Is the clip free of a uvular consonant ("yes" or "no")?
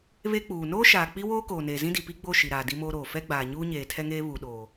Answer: yes